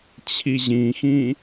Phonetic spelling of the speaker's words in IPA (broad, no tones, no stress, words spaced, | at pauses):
t͡ɕʰiʑĩxĩ